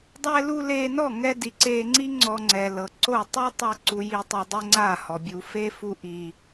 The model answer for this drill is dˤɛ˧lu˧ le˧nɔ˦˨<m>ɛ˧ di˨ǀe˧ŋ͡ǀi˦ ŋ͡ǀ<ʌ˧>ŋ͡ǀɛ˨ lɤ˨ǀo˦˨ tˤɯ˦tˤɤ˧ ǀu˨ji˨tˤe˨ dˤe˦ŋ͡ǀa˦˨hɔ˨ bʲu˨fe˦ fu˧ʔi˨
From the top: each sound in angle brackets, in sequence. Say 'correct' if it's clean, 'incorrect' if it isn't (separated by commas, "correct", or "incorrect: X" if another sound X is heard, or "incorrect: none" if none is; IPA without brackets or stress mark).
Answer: incorrect: ŋ, incorrect: ɔ˧